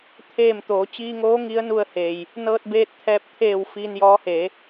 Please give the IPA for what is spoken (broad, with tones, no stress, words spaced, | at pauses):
t̪ʰeː˧˩m t̪oː˩˧ t͡ɕiː˧ŋoː˧˥ ŋi˧˥ə̯nu˧ə̯heː˩j | nɤː˧t̚beː˧t̚t̪ʰɛː˧p̚ t̪ʰeː˧˩w fiː˧n jɔː˧˥heː˩˧